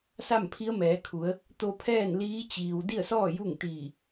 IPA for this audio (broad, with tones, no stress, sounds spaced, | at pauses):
s a˥˨ m pʰ i˧˥ ə̯ m ɛː˩˧ kʰ u˩˧ ə̯ | t̪ o˧ pʰ ɛː˥˨ n l iː˧˥ t͡ɕ iː˩ w d i˥˨ ə̯ s ɔː˥˨ j u˥˨ ŋ t̪ iː˧˩